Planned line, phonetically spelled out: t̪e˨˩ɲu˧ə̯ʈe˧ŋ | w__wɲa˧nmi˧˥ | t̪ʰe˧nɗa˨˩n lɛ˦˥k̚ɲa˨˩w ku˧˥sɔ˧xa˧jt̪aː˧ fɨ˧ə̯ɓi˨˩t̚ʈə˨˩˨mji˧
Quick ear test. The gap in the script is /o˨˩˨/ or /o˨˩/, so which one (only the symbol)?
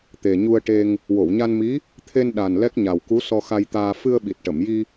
o˨˩˨